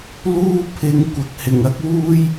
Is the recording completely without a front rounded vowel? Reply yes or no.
yes